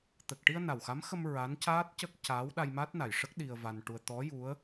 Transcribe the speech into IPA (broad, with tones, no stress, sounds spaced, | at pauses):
t̪ ə˨˩ k̚ ʈ i˧ ə̯ n a˨˩ w x a˧˥ m x ə˧ m ɹ a˧˥ n c aː˦˥ t̚ c ə˦˥ k̚ c a˧˥ w ɗ a˧ j m a˦˥ t̚ n a˨˩ j ʂ ə˦˥ k̚ ɗ i˧ ə̯ v a˧ n ʈ u˧ ə̯ t̪ ɔ˧˥ j u˧˥ ə̯